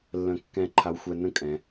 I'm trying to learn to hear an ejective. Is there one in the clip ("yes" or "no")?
yes